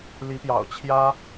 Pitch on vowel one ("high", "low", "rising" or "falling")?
rising